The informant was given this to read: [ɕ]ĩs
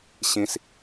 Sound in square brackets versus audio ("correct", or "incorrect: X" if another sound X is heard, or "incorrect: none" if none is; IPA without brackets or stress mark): correct